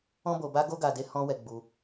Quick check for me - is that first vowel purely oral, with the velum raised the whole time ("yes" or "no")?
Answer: no